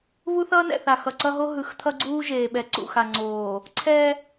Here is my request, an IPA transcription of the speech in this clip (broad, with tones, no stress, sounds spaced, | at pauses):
β u˦ θ ʌː˦ n ɛ̰˨ θ a˨ x ʌ˨ ǀ ʌ˦ ɦ o˦ ɦ ɯ˨˦ x t̪ʰ ʌ˦ ɡ͡ǀ uː˦ ʒ eː˨ ɓ ɛ˨˦ ǀ ṵ˨ x a˨ ŋ͡ǀ oː˨ | ǀʰ ɛ˦